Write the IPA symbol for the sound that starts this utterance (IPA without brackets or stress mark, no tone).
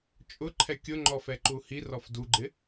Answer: t͡ʃʼ